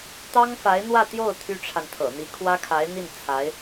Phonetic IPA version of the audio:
t̪ɑ˥ŋfa˧˥ɪ̯n̪wä˥˧t̪jo˥˩ʊ̯ t̪ʰy˥ʈ͡ʂʰa˨nt̪ʰɤ̰˨˩ n̪i˧˥kʰwä˥kʰa˧˥ɪ̯n̪i˥˩n t͡sʰa˧˥ɪ̯

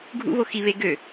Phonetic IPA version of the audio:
ɡʱṵβo xiβe ɡø

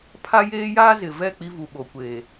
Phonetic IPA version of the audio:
pʰa˦jeː˦jaː˦ zɪ˨vɛ˦˨ k͡pi˦vu˨ɓo˨kʷeː˨

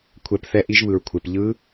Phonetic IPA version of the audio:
kʷʰɛ˧p θɛ˦˥ʔi˦˥ʒβɯ˧ɹkʷʰe˧p ʎɯ˦˥

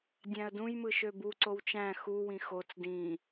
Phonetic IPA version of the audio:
dʲæ̃ə̯dũjmɯ ʃøbu ǀowt͡ʃæ̃ xuwĩ xot͡s dĩ

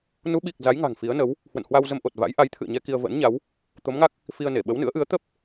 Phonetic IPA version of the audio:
nu˨˦ɓi˨˩k̚ za˨˦jŋa̤˨˩ŋ fi˨˦ə̯nə˨˦w | hwə̰˧˨nhwa˧wzə˧mʔo˨˩t̚ va̰˧˥j ʔa˨˦jt̪ʰɨ̰˧˨ə̯ɲɛ˧ ki˧ə̯və̰ː˧˥nɲa˨˦w | t̪o˨˦mŋa˦˥k̚ | fi˧ə̯ne˧˩ ɓə˨˦wnɨ̰˧˥ə̯ʔɨ˨˦ə̯ t̪ə˦˥p̚

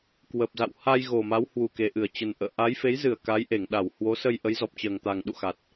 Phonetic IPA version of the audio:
kwə˨˩p̚za̰˧˨w ha˧j ɣo˨˩ma˨˦w hwu˨˩ke˨˩ʔɨ˧˩ə̯t͡ɕə˨˩n ʔə̰ː˧˨ʔa˨˦jfe˨˦j zɨ˧˩ə̯ ka˨˦jʔe˧˩ŋ ɗa˧˩w hwo˨˦sə˧j ʔə˨˦jzɔ˨˩p̚t͡ɕəː˨˩ŋt̪a˨˩ŋ ɗṵ˧˨xa˨˩t̚

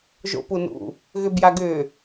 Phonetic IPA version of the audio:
ʒo̰punṵ | ɣʏbjaɡʏː

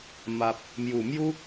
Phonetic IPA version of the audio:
ma˨p̚ | mju˨˩mju˦

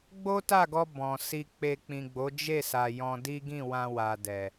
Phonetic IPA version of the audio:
ɡ͡bo˦ta˦˨ɡɔ˧ bɔ̃˨si˧k͡pe˧ k͡pĩ˨ɡ͡bo˨˦d͡ʒe˦˨sa˨ jɔ̃˧di˦ ɡĩ˦˨wã˧ wa˨dɛ˨

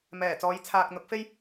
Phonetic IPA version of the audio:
mɛː˨˩t͡sɔː˨˥j t͡sʰaː˨k̚n̪ʊ˨˥k̚fe˥j

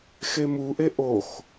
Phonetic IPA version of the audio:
xemuʔe ʔox

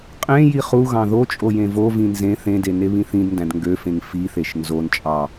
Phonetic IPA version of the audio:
qʼẽ jiχuɣɑ̃ ðot͡ʃʼo jẽvovĩ nzẽθ ẽde neβĩθĩdndæ̃d ŋɡøfẽŋ fiθeʃ nzont͡ʃʼɑ

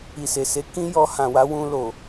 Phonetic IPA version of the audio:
i˨se˨se˨˦ kĩ˦jɔ˧ hã˨wa˨˦wũ˧lo˨

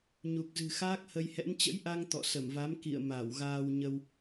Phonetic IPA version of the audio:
ɲu˨˩k̚zɨ̤˨˩xaː˦˥k̚ hə˧jhɛ̰˧˥n t͡ɕə̰˧˥jʔa˧ŋ t̪ɔ̰˧˨sə˧˩mva˨˦m kḭ˧˨ə̯ ma˧˩wɣaː˧wɲə˧w

